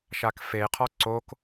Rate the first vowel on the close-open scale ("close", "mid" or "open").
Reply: open